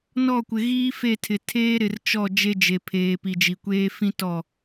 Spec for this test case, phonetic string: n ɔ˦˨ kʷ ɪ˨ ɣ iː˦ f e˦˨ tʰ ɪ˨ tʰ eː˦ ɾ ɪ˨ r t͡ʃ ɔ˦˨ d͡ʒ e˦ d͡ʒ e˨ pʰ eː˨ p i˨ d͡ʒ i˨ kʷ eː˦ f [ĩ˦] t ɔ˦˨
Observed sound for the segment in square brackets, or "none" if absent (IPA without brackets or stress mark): ĩ˦